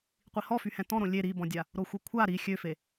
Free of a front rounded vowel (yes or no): no